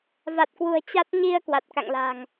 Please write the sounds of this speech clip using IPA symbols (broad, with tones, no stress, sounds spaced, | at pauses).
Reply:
v a˨˩ t̚ k w ṳ˨˩ ə̯ t͡ɕ a˦˥ t̚ ɲ i˧ ə̯ k w a˨˩ t̚ k a̰˧˨ ŋ l a̤˨˩ ŋ